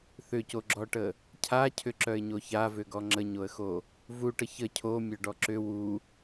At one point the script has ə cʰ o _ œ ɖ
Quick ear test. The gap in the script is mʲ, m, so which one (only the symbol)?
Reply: mʲ